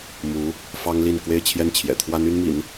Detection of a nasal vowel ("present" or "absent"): absent